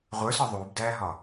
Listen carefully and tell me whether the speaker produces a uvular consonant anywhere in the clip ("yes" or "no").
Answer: yes